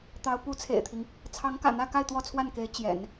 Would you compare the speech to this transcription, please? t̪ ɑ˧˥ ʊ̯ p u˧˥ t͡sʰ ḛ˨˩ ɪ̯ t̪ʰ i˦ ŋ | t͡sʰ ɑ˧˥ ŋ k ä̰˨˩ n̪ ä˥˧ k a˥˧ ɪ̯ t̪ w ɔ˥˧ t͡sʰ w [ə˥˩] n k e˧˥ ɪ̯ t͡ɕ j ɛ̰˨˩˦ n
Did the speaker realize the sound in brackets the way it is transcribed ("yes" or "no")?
no